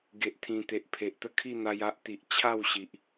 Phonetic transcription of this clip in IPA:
ɡ e˨ ʔ t̪ʰ ĩ˨˩ t̪ e˨ ʔ pʰ e˨ ʔ t̪ ə˥˧ kʰ i˥˧ n̪ a˧ j a˦ ʔ t̪ i˨ ʔ t͡ɕʰ a˥˧ w ɕ i˨ ʔ

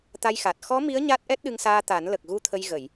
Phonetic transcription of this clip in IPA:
t̪ a˧ j x a˨˩ t̚ x ɔ˧˥ m i˧˥ ə̯ ɲ a˦˥ t̚ ʔ ɛ˦˥ t̚ ɗ ɨ˧ ŋ s aː˧ t̪ a˨˩˦ n l ə˨˩ k̚ ɣ u˧ t̪ʰ ə˧ j ɣ ə˨˩˨ j

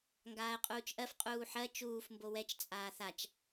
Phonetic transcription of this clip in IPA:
ŋ ɡ aː ə̯ qʼ uː t͡ʃ ʔ ɜ f qʼ uː ħ ɜ t͡ʃ uː f m b o w ɛ t͡ʃ t͡sʼ aː θ a t͡ʃ

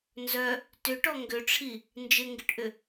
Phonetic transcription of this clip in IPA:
n z œ | t ʏ ʈ ɔ ŋ ɡ ʏ ʈ͡ʂʰ i | n d͡ʒ ɪ ŋ ɡ ɪ ʈ ʔ ʏ

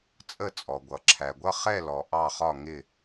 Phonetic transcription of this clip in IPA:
t͡sʼ ə˦˨ t͡sʼ ɔ˩ ɡʷ ʌ˩ ǁʰ æ˩ ɡʷ ʌ˦˨ χ ɛ˦˨ l ɔ˩ ʔ ɑ˦˨ χ ɒ˦˨ ŋ ɪ˦˨

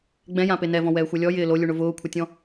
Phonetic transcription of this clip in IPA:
ɡ͡b ɛ̃ j ã p e n ɛ v ɔ̃ w ɛː xʷ ɛ lʲ ɔ j ɪː l o lʲ u ɳ ʊ v ʊː kʷʰ ɪ tʲ ɔ̃

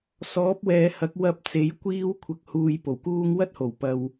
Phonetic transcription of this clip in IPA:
s ɔː˨˥ p̚ w ɛː˨ h ɐ˨˥ k̚ w ɐ˧ p̚ t͡s e˨˥ j kʷ iː˥ w kʷʰ ɐ˨ k̚ h uː˨ j p o˨˩ w k uː˥ ŋ w ɐ˥ t̚ h o˨˩ w p ɐ˧ w

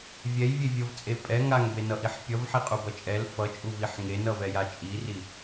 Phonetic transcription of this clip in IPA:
vʲ ɛ j vʲ e vʲ ʌ v t͡sʼ e pʼ ɛ ŋ a ŋ b e n ʌ ʔ i ħ pʲ ʌ v ħ i qʼ u b ʌ t͡ʃʼ ɛ l f ʌ t͡ʃʼ u v i ħ ŋ e n ʌ v ɛ j a t͡ʃʼ i r i

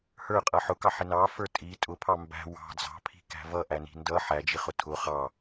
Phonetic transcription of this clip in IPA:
h ə˞ qʼ ʌ ħ ʊ k ɑ ħ ɪ n ɑ f ə˞ tʼ i tʼ ʊ pʰ ɑ m b æ̤ w ɑ̤ d͡z ɑ̤ pʰ i̤ k æ̤ v ʌ ʔ æ n i̤ n d ʌ ħ æ d͡ʒ i χ ʊ tʰ ʊ χ ɑ

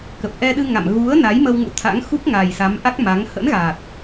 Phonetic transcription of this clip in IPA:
k ə˨˩ p̚ ʔ ɛ˧ ɗ ɨ˧ ŋ a̰˧˨ m ɣ u˨˦ ə̯ n a˨˦ j m ə˧ w ŋ ṵ˧˥ t̪ʰ a̰˧˥ ŋ x u˦˥ k̚ ŋ a˨˩ j s a˨˦ m ʔ a˦˥ k̚ m a˨˦ ŋ h ə̰˧˥ n ɣ a˨˩ t̚

